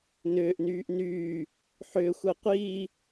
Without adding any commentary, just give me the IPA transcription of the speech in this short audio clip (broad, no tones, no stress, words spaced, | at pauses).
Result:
nʏːʔnyːʔ nyː | ħʏːxʷɛ qʷiː